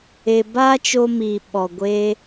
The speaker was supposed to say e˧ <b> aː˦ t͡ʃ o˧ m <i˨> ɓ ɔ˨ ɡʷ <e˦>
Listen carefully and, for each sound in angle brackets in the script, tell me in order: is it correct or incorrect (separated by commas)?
correct, correct, correct